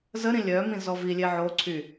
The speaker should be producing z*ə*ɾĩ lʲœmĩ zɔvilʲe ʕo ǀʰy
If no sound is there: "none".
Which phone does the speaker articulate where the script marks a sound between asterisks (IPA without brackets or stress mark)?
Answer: ə